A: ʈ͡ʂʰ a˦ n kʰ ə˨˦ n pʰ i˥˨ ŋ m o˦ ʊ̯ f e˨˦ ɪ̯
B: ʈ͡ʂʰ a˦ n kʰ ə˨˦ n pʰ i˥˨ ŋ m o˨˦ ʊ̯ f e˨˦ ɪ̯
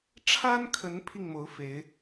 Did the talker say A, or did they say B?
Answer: B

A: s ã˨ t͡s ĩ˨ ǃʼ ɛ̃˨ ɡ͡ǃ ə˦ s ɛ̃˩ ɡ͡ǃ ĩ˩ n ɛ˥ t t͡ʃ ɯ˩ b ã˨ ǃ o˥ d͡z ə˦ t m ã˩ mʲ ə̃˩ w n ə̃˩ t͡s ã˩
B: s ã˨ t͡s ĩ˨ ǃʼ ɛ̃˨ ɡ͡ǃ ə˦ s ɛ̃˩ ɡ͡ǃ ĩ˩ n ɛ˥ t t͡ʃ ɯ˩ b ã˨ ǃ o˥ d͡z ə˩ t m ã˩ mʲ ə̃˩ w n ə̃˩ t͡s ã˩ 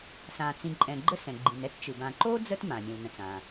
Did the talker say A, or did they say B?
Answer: A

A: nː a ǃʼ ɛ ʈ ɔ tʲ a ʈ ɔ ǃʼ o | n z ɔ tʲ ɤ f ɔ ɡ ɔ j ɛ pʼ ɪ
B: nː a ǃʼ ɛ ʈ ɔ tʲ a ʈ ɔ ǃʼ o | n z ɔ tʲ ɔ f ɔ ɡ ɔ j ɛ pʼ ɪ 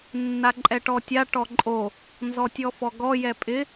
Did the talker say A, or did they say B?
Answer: B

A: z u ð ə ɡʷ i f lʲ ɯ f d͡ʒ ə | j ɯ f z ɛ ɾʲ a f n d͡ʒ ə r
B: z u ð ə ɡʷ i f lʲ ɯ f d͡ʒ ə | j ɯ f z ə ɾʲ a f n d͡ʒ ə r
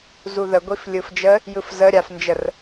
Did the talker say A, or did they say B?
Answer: B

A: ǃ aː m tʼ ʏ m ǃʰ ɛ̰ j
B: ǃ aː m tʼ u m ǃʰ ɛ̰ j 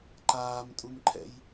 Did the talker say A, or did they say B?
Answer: B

